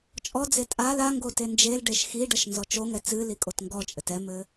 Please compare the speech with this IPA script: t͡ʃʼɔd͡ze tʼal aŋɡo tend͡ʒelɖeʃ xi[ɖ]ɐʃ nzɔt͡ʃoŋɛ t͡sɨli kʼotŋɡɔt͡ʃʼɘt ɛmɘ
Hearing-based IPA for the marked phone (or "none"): ɖ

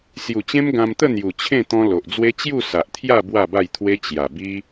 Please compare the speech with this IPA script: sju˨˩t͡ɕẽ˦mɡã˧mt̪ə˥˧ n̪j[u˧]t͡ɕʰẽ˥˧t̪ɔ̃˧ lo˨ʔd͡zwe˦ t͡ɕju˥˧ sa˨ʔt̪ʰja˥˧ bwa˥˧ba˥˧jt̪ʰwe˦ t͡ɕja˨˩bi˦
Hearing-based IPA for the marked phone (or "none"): u˨˩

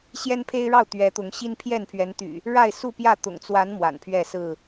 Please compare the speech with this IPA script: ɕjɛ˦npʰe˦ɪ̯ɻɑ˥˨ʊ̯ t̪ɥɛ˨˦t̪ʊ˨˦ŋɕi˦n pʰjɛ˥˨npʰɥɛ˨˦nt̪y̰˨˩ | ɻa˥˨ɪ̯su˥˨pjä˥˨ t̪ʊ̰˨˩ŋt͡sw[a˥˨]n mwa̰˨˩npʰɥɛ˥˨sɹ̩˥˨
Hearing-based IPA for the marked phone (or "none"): a˨˦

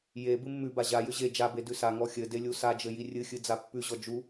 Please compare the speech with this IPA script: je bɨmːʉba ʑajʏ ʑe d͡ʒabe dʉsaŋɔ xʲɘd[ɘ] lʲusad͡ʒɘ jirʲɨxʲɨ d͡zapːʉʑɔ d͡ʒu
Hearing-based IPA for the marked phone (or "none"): e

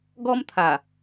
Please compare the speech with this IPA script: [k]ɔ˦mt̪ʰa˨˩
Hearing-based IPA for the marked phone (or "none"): ɡ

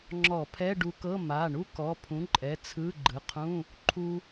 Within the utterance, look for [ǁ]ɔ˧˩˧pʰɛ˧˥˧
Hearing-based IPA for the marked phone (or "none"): ŋ͡ǁ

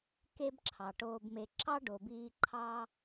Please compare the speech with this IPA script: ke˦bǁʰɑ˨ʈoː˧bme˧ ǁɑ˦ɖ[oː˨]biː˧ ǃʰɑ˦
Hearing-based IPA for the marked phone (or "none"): o˨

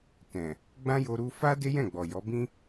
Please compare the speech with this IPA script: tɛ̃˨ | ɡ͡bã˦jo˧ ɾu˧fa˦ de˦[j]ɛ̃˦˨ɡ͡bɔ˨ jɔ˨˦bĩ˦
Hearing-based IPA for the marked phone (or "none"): j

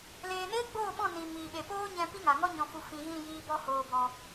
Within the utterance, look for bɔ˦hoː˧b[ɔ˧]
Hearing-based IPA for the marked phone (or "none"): ɔ˧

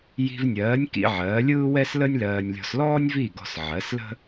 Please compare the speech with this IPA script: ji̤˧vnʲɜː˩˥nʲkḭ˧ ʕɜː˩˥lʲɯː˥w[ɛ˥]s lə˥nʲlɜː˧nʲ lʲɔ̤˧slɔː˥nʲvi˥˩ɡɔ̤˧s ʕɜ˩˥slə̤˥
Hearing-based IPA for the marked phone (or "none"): ɛ˥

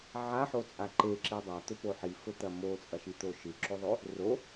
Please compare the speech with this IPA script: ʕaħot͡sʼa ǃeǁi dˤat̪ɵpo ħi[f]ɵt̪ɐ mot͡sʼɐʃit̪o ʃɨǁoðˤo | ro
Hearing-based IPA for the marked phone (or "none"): f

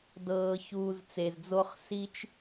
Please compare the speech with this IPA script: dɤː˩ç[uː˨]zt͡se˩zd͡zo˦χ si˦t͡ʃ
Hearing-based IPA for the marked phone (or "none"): uː˨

